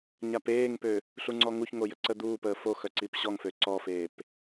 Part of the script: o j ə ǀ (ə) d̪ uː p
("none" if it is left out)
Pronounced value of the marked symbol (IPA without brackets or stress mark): ə